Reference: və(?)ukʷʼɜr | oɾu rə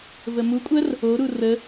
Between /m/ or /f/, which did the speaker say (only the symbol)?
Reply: m